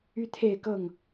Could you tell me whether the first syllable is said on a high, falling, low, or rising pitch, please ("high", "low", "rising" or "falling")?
high